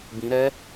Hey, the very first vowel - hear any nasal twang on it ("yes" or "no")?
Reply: yes